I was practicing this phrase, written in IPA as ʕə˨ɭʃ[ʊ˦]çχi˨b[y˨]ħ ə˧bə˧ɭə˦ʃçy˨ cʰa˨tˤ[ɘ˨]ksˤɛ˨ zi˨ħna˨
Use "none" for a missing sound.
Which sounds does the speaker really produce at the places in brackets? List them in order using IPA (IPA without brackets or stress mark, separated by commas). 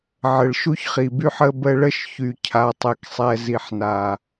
u˦, y˦, e˨